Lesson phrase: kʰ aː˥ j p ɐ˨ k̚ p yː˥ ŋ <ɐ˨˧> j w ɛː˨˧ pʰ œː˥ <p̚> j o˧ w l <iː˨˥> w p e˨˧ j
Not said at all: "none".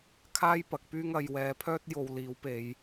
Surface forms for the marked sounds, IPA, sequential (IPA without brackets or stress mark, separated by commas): ɐ˨˧, t̚, iː˨˥